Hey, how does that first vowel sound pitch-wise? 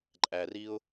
low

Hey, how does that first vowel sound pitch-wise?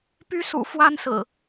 high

